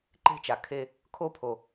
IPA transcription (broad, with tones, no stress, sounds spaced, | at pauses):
ǃ e̤˧ t͡ʃ a˩ kʰ e˧ | kʰ o˧ pʰ o˩